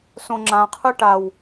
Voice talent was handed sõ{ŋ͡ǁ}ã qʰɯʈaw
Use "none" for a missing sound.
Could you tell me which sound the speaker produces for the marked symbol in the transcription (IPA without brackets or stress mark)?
ŋ͡ǁ